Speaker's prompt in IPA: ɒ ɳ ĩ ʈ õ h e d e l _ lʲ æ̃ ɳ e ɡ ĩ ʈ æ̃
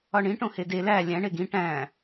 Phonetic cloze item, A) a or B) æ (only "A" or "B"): B